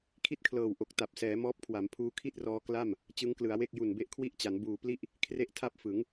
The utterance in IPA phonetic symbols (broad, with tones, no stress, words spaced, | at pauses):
kʰi˥˩t̚kʰlɤː˨˩wʔo˨˩k̚ ta˨˩p̚sɛː˩˦mɔː˦˥p̚kʰwa˩˦m pʰuː˧kʰi˥˩t̚rɔː˧ kla˥˩m | t͡ɕɯ˦˥ŋklɯ˩˦a̯we˥˩k̚ ju˨˩nbe˦˥ʔkʰwi˥˩ʔt͡ɕa˩˦n buː˨˩pli˥˩ʔ | kʰre˥˩ʔtʰa˥˩p̚fɯ˩˦ŋ